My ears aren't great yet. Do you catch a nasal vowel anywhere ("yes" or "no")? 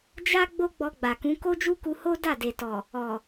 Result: yes